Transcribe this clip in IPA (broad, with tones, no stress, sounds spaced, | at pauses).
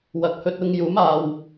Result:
w ɐ˨ k̚ h ɵ˧ t̚ ʊ˧ ŋ j uː˨˥ m aː˨ w